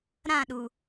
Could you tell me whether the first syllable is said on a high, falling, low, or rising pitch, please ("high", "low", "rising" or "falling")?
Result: falling